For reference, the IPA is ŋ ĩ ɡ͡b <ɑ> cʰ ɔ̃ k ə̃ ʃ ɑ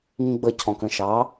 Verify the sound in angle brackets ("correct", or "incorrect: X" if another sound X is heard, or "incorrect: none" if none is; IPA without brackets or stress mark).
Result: incorrect: ə